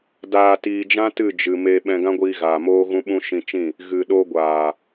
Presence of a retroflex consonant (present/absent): absent